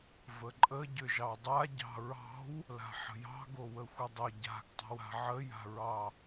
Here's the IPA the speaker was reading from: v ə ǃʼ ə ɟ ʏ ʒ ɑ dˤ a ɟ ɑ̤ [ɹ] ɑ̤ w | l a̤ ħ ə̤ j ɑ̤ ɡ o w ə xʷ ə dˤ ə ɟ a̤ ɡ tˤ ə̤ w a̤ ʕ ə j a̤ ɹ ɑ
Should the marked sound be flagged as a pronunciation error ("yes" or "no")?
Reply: no